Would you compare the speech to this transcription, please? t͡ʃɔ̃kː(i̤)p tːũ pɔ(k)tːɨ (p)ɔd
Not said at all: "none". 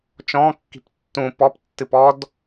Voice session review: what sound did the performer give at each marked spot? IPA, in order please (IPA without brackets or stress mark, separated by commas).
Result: i̤, p, p